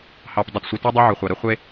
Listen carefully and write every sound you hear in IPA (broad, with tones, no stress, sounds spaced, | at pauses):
h ɑ˨ p dˤ ʊ˨ t sʷ ə˨ t e˦ dˤ o˦ ʕ ʊ˨ χʷ ɑ˨ ɾ ə˦ χʷ e˦